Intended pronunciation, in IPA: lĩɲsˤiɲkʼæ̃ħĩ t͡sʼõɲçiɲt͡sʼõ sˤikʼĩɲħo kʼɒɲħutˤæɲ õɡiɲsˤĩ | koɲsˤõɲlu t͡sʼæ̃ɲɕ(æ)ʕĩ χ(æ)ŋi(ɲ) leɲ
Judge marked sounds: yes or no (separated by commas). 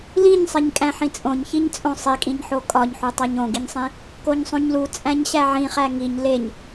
yes, yes, yes